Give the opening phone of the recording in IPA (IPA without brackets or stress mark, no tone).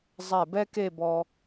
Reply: zˤ